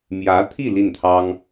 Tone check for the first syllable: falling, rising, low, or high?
rising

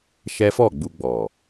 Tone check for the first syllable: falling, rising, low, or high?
high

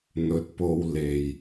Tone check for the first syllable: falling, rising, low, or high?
rising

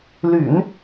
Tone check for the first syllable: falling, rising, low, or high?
low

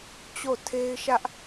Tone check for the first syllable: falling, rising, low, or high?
falling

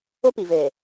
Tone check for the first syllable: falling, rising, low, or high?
high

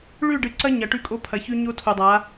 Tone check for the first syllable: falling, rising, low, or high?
falling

